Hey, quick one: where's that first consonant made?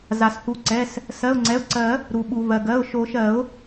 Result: tongue tip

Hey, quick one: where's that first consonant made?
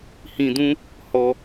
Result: throat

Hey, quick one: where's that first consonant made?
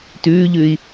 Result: tongue tip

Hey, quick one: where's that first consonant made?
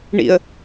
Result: retroflex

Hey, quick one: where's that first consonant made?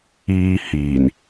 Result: throat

